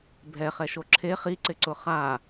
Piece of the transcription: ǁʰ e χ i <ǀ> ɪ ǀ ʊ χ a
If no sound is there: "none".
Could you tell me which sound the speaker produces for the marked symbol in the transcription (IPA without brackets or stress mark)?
ǀ